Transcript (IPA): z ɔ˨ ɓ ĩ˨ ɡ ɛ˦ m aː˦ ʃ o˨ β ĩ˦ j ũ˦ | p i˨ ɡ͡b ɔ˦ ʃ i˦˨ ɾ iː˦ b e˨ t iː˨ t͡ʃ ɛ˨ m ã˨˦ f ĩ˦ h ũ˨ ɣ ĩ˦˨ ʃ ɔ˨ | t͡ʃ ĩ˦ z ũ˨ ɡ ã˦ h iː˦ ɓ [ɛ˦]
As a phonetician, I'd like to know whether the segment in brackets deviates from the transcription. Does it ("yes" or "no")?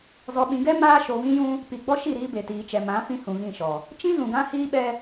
no